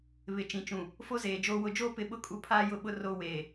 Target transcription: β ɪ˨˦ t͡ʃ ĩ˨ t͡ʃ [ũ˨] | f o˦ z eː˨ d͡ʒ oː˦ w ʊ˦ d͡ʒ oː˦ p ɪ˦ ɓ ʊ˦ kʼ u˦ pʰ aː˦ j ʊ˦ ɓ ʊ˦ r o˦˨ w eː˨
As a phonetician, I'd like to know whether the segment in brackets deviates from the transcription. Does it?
no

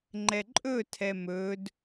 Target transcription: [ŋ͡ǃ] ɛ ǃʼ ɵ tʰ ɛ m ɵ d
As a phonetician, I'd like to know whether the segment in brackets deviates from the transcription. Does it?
no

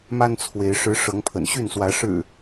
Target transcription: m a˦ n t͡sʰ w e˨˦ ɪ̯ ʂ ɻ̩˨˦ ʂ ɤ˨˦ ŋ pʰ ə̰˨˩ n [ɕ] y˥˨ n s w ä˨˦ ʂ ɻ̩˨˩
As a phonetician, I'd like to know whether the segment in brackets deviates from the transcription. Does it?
no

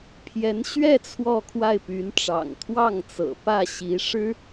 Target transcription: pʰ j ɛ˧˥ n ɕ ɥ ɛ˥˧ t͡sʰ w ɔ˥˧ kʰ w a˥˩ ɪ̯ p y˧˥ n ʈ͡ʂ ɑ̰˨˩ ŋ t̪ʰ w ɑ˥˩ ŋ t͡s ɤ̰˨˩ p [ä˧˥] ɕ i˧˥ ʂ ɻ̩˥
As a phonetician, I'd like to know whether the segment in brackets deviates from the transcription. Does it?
yes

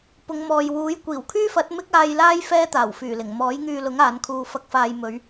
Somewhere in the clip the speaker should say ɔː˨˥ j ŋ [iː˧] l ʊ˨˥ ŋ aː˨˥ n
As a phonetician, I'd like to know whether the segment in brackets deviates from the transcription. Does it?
yes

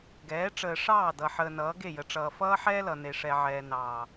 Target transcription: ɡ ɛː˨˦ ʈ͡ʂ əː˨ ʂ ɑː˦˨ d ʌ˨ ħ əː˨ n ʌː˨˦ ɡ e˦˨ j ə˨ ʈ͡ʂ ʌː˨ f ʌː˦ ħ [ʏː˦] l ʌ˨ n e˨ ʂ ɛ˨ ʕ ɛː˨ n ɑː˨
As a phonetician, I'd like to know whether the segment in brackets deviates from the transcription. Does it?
yes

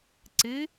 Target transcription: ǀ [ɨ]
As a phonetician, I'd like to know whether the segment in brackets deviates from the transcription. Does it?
no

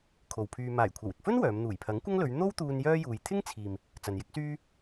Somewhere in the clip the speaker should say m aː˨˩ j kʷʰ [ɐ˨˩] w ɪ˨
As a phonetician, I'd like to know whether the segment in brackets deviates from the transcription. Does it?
no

